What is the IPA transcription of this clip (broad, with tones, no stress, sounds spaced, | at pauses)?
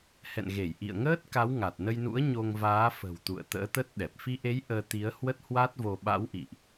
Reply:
h ɛ̰˧˨ n ɣ e˧˩ j ʔ ḭ˧˨ ə̯ ŋ əː˦˥ t̚ k a˨˦ w ŋ a˨˩ t̚ n ə˧ j n ṵ˧˥ ə̯ ɲ o˧ ŋ v aː˨˦ f ə̤˨˩ w t̪ ṵ˧˨ ə̯ t̪ ə̰ː˧˥ t̪ ə˦˥ t̚ ɗ ɛ˨˩ p̚ f i˧ ʔ e˨˦ j ʔ əː˧ t̪ i˨˦ ə̯ h w ə˦˥ t̚ h w a˦˥ t̚ v o˧ ɓ a̰˧˥ w ʔ ḭ˧˨ ʔ